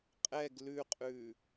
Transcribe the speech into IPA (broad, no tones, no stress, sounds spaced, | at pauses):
qʼ ɛ ɡ l ʉ qʼ ʉ